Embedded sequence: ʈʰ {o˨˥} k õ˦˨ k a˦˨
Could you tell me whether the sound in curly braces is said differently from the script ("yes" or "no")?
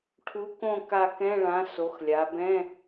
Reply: yes